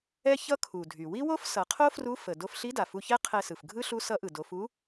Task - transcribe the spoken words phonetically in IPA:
ɛ˥ ç ʌ˥ kʰ u˩ dʱ y˩ w i˥ w o˥ f s ʌ˩˧ qʰ o˥ f r u˧˥ f ə˩ d o˧ f ɬ i˧˥ d a˩ f u˧ ç ɛ˥ qʰ ɛ˧ s ɯ˩ f ɡʱ ɯ˥ ɬ u˧˥ s ʌ˧˥ ʔ ɯ˩ d o˩˧ f u˧˥

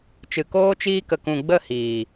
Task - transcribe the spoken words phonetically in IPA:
t͡ʃ ɨ˨ k oː˧ t͡ʃ iː˧ k ə˨ k ũ˨ ɡ͡b ə˦˨ h iː˨

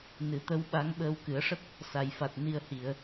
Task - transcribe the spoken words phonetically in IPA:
n ɨ˨˩ t̪ ə˧˥ w ɓ a˧˥ ŋ ɓ əː˧ w k ɨ˨˩˦ ə̯ ʂ ə˦˥ k̚ | s a˨˩˨ j f a˨˩ t̚ n i˧ ə̯ h i˨˩˨ ə̯

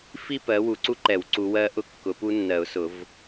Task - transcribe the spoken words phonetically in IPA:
f i˥˧ p ɜ˨˦ w u˨˦ ǀ u˦˥ ǃ ɛ˨˩˦ w ǀ u˨˦ w ɜ˦˥ ʔ ʊ˦˥ kː ʊ˨˦ p u˦˥ nː ɜ˨˩˦ ʊ̯ s ʊ˨˩˦ v

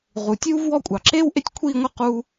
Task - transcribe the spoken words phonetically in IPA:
ʁ u˨ tʲ uː˥ v w ɔ˥˧ kʷʼ ɑ˨ ǁ eː˥ w ʔ e˥ tʲ kʷʰ iː˥˧ ŋʷ ɨ˥˧ q uː˥

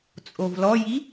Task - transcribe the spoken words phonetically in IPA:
t͡sʼ o v l ɔ j i

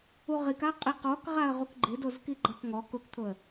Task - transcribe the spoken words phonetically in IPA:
u ʁ i k a qʼ i q ɔ k ʁ a ə̯ ʁ u k ɡ͡ǃ ɪ d o z k i ɡ͡ǃ a k ŋ ɔ k ʊ k t̪ʰ ʊ ə̯

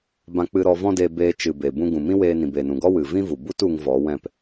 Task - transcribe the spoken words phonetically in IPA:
b ã˧ k͡p ɨ˧ ɾ ɔ˧ v ɔ̃˦ d eː˧ b eː˧ t͡ʃ ɨ˨ b eː˨ b ũ˧ ɡ ũ˨ m ĩ˦ w eː˧ n ĩ˨ b eː˨ n ũ˨ ɡ ɔ˦ w ɨ˨ v ĩ˦ v u˨ b u˦ t u˧ ŋ v ɔ˨˦ w ɛ̃˦˨ p

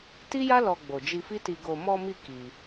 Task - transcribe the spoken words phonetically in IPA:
t i˦ j a˦ l ɔ˧ ɡ͡b o˨ d͡ʒ i˧ f i˦ t i˧ ɡ o˧ m ɔ˧ m i˧ k i˧

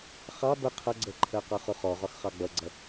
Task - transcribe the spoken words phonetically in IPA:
χ ɑ b ə qʰ ʌ ɡ͡ǀ ɜ ǃʰ ɜ q ɑ χ ʊ χ ɔ ʁ ɒ x χ ɑ ɡ͡b ʌ ɡ͡ǀ ʌ

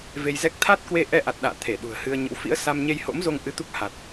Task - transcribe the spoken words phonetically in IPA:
v e˧ j z ɛ˦˥ k̚ t̪ʰ a˦˥ t̚ k w e˧ ʔ ɛ˧ ʔ a˨˩ t̚ ɗ a̰ː˧˨ t̪ʰ e˧˩ ɗ ṳ˨˩ ə̯ h ɨ˧ ə̯ ɲ ə̰˧˥ w f ḭ˧˥ ə̯ s a˧ m ɲ e˧ j h o̰˧˥ m z o˧ ŋ ʔ ɨ˧ t̪ u˦˥ k̚ h a˨˩ t̚

